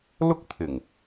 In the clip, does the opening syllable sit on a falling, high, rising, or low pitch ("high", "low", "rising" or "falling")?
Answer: high